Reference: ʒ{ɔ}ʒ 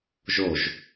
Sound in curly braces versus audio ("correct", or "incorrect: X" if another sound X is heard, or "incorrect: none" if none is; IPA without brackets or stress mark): incorrect: o